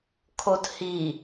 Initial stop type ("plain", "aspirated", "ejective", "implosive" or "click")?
aspirated